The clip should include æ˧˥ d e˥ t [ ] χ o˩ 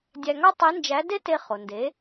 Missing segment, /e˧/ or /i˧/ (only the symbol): e˧